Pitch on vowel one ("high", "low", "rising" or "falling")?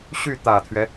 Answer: falling